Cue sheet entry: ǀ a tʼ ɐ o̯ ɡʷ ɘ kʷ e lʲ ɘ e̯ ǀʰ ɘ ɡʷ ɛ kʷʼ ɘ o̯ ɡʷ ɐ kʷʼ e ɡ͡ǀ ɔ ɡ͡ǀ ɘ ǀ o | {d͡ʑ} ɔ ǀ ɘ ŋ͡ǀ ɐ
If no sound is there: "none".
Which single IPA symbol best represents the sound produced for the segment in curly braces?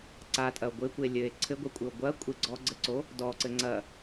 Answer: d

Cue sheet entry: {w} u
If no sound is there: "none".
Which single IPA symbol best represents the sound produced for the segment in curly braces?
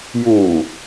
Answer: j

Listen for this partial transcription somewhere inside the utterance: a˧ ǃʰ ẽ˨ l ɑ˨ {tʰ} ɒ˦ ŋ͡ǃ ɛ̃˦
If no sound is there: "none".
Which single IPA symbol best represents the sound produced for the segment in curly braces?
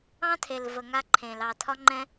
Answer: tʰ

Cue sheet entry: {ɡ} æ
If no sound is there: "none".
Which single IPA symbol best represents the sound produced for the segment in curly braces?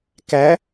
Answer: k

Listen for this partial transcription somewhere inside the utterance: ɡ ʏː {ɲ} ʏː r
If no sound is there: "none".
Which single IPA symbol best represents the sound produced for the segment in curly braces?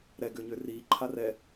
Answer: ɲ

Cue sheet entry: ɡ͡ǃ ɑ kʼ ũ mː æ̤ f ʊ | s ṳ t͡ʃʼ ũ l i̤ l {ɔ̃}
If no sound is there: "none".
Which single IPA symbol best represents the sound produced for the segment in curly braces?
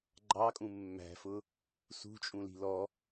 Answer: ɔ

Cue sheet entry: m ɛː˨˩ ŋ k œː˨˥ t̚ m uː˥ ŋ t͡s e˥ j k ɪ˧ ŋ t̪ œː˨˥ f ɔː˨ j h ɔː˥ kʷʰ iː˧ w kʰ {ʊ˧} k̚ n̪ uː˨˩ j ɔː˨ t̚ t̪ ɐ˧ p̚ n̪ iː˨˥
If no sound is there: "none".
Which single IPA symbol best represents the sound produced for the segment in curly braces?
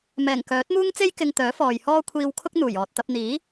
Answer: ʊ˥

